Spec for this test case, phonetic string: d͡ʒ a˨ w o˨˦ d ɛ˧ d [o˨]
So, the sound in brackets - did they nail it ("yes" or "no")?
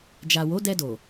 yes